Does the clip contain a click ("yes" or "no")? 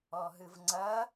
yes